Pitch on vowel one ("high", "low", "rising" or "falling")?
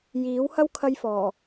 rising